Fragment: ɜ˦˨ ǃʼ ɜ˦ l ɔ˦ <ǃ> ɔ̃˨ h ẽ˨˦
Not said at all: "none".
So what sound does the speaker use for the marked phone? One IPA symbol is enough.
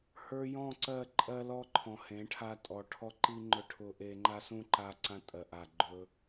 ǃʰ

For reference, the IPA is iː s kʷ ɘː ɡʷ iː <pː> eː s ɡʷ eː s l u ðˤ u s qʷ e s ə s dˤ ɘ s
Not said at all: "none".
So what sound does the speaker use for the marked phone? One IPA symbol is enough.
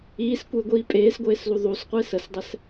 pʼ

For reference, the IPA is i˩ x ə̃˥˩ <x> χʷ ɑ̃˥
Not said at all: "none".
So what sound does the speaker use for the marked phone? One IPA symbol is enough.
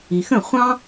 none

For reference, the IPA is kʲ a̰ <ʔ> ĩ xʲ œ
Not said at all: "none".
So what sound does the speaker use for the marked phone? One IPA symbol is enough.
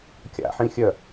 ħ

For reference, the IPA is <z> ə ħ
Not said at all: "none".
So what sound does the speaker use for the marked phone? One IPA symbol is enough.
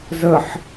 z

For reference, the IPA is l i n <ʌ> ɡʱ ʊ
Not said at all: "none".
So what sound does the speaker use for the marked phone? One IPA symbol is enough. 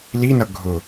ʌ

